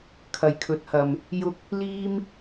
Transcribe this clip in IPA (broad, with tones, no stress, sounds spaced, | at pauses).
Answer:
kʰ ɐ˨ j kʰ ɵ˨˥ t̚ h ɐ˨ m | j ʊ˧ k̚ | l iː˥ m